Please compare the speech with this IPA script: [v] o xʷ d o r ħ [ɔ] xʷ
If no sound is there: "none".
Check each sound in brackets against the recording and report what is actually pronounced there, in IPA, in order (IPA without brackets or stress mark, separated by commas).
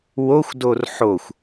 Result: w, o